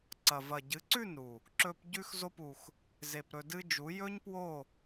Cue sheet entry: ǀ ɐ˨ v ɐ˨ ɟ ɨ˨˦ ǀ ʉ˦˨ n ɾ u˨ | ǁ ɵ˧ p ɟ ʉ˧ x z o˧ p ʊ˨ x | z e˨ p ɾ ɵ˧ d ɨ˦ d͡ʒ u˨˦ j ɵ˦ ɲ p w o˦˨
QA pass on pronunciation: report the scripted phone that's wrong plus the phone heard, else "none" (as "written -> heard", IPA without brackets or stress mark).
ʊ˨ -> u˨